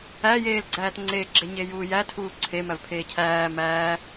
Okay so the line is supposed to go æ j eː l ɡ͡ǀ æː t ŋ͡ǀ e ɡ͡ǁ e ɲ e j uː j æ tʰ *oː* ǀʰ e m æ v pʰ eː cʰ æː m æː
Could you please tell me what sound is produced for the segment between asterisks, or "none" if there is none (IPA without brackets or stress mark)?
uː